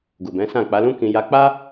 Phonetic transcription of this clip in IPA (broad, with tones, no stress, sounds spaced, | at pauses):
ɡ u˨ b ɛ̃˨˦ s ã˦˨ k͡p a˨˦ l ũ˦ k ĩ˧ j a˧ k͡p a˦